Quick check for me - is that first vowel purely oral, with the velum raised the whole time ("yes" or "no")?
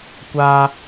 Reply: yes